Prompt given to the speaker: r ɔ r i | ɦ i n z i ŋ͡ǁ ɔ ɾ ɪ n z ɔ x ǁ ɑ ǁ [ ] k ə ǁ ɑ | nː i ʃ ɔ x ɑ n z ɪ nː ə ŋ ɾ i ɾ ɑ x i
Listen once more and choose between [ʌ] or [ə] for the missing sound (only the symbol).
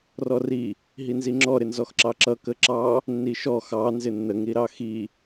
ʌ